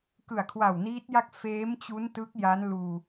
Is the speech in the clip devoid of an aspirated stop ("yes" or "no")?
no